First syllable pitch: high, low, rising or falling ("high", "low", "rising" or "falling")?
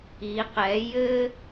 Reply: rising